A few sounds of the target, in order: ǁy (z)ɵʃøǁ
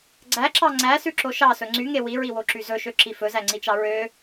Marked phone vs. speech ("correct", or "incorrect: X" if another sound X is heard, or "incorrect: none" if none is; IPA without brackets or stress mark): correct